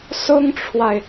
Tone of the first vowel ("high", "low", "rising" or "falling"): high